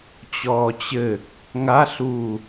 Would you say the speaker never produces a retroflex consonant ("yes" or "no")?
yes